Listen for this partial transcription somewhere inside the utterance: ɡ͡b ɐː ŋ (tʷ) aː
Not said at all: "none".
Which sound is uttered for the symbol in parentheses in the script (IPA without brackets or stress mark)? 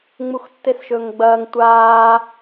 tʷ